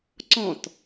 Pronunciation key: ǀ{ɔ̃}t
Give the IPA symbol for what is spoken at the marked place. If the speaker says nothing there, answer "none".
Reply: ɔ̃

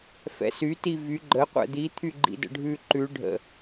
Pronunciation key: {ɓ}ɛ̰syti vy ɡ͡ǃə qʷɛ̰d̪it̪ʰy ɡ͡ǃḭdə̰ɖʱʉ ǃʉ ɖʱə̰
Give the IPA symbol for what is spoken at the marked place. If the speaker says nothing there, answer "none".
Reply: f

